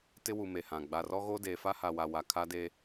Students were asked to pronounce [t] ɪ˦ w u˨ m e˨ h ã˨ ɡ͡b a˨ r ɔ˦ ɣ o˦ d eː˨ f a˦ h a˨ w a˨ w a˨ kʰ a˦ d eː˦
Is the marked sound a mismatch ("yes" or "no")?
no